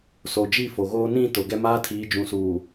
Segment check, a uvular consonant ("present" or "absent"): absent